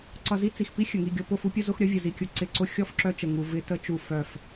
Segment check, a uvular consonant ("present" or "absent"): absent